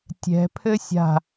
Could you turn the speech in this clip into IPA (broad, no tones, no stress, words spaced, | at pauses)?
tʲɛ̤pʰɘ sʲa̤